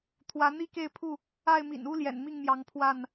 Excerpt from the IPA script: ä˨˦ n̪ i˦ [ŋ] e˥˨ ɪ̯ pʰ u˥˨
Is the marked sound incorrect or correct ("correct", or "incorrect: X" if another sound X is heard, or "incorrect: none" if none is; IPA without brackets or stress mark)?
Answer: incorrect: k